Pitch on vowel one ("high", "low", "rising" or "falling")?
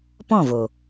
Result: falling